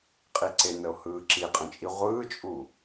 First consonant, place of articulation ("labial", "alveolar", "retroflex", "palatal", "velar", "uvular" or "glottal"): uvular